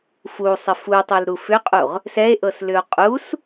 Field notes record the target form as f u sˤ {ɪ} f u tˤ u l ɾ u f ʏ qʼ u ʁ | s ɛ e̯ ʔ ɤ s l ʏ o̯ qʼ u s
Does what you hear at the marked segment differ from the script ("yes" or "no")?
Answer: no